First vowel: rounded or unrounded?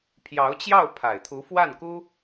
unrounded